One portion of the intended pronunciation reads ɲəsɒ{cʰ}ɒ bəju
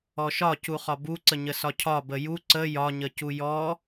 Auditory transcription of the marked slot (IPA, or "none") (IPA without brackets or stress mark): cʰ